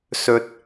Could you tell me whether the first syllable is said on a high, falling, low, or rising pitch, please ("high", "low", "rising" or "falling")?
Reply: low